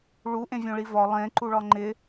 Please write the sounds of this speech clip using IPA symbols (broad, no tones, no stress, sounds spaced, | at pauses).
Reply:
ɭ u ʔ ẽ vʲ õ ɭ i v ɒ lˠ ẽ ǃ u ɭ ɒ ŋ͡ǃ ɪ